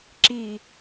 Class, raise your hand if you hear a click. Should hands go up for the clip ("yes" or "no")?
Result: yes